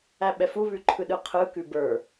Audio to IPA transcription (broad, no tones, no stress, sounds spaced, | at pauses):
æ ɓ ɛ f u β ʉ ǃʰ ɯ ɗ ɯ qʰ ɯ k ʉ b ə˞